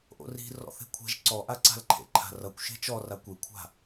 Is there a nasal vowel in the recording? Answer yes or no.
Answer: no